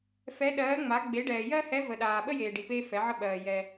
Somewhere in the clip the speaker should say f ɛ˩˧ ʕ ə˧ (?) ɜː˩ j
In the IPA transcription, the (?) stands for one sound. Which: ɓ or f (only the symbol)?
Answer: ɓ